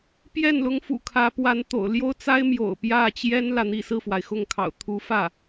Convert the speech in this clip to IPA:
pjɛ˥˩nlʊ˧˥ŋ fṵ˨˩kʰä˧˥pwa˧˥n t̪o̰˨˩ʊ̯ljo˥ʊ̯t͡sa˥ɪ̯ mjo̰˨˩ʊ̯pjä˥˩t͡ɕjɛ˥n lä˥˧n̪i˥˧ sɹ̩˥˩fwa˩ɪ̯xʊ˥˩ŋkʰɑ̰˨˩ʊ̯ t̪ʰu˧˥ fä˥˩

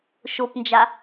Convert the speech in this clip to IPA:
ʃopnd͡ʒa

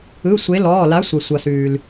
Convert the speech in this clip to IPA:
ɯ˩˧˩sʷe˩˧ lɔː˩˧˩la˨˥sʷʌ˩ sʷʌ˩sʉː˩l

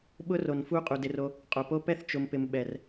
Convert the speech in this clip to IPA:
ɓʊ˦ro˨n fu˧ qʼu˨dɪ˧ro˧ | qʼo˨po˦ pɛ˦θt͡ʃʊ˨mpɪ˨m ɓɛ˨r

